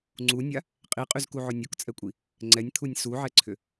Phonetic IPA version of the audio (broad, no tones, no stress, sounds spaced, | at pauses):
ŋ͡ǀ u nʲ a | qʼ i qʼ y z k u ʕ ʊ nʲ o k t͡sʼ ɛ kʷʼ i | ŋ͡ǀ ɛ nʲ t̪ʰ u nʲ s u ʕ ɛ ǀʰ ʏ